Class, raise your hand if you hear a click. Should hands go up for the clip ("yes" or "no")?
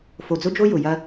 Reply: no